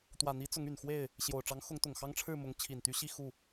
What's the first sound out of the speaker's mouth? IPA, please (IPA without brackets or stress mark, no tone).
t̪